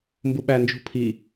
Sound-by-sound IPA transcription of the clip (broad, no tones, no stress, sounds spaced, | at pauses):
m b u ɓ æ n d͡ʒ ṳ pʰ i